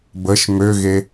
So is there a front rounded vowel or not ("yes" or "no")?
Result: yes